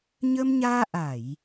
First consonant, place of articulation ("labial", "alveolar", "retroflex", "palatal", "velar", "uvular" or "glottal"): palatal